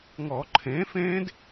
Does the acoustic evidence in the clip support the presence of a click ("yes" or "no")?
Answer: yes